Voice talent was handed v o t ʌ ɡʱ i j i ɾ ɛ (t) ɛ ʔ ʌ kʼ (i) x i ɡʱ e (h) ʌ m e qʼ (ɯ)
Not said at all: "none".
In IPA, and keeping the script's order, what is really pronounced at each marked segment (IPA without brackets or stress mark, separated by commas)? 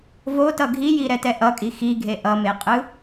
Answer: t, i, ʔ, ɯ